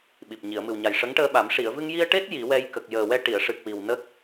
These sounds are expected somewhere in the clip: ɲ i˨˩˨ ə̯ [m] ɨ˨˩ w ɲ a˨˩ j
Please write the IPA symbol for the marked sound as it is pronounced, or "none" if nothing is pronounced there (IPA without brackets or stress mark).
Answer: m